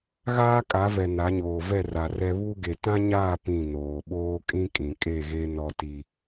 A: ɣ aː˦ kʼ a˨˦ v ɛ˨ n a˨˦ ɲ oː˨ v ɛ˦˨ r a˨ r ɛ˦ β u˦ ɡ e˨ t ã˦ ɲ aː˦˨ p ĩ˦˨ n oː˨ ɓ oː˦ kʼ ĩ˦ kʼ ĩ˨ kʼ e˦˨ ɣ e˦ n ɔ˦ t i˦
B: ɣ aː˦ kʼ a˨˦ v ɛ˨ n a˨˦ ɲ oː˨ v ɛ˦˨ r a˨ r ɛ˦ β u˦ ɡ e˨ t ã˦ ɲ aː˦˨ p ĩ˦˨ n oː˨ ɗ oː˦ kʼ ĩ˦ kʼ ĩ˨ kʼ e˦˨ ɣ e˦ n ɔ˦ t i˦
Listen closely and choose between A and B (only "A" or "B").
A